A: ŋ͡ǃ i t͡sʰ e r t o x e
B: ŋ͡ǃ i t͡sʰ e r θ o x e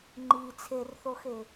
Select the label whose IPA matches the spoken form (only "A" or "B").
B